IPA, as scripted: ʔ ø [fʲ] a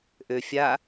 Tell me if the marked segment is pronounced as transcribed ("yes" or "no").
yes